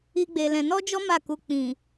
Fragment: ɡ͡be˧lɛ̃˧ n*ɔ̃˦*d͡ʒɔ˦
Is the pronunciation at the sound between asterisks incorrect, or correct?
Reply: incorrect